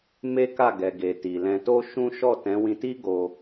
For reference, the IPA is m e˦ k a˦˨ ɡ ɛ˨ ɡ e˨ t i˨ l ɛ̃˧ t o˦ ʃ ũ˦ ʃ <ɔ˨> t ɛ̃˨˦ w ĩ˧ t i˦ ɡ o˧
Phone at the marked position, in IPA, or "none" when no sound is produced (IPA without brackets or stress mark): ɔ˦˨